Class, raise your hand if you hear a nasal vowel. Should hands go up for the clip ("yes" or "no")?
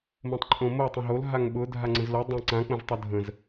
yes